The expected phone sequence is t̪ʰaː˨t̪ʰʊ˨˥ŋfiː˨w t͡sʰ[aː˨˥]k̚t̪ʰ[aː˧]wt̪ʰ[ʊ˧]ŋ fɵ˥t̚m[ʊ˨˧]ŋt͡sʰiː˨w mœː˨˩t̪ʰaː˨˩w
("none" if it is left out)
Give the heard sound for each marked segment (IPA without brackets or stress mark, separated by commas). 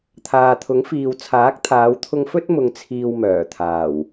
aː˨˥, aː˨˧, ʊ˧, ʊ˨